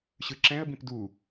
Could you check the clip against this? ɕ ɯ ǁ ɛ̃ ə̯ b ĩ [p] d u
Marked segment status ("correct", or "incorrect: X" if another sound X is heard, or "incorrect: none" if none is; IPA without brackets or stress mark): correct